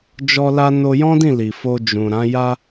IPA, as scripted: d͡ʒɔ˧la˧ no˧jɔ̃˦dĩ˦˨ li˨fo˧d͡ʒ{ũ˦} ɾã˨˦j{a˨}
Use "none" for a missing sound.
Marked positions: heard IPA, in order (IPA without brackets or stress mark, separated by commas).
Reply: ũ˨, a˦